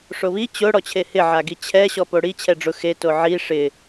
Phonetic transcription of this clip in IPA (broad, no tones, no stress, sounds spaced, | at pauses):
ʂ o β i t͡ɕ ʊ ɽ ɔ t͡ɕʰ e h ɪ ʕ a ɡ i t͡ɕʰ ɛ ɕ ɔ p o ɽ i t͡ɕʰ ɛ ɖ͡ʐ ʊ x e t o ʕ i ʂ ɪ